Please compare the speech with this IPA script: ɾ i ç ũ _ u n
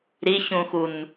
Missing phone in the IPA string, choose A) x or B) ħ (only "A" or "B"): A